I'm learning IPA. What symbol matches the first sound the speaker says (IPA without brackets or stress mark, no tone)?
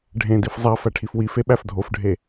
ɖʱ